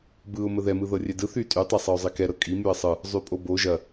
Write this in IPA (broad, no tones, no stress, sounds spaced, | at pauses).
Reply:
b ɯ ʊ̯ m ə ð ɛ m ɯ ð ɤ rʲ ɛ d ɯ θ y tʼ y tˤ ɛ sˤ ɤ ʊ̯ zˤ i k ɛ ɾ ɤ kʼ i m y ə̯ sˤ ɯ | zˤ y pʼ o b o ʒ ɐ